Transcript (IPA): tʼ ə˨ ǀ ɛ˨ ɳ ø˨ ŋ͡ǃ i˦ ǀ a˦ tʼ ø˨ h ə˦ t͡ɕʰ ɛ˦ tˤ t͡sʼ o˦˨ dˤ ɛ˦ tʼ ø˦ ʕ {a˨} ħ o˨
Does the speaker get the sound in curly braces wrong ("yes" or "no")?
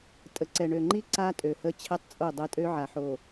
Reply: no